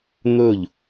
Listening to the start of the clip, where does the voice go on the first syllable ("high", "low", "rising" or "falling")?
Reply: falling